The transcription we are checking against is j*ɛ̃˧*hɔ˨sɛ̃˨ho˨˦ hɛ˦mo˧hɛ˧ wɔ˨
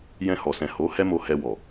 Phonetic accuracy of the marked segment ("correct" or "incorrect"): correct